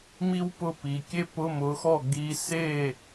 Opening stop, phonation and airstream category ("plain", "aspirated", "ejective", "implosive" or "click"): plain